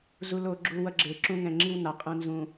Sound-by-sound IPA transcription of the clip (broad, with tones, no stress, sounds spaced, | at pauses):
z u˨ l o˨ ɡ͡ǁ u˨ w ʌ˦ ɡ͡ǁ e˨ ǁ ũ˦ ŋ ɛ̃˨ ŋ͡ǁ i˦ w n a˨ qʼ ɛ̃˨ n z ũ˨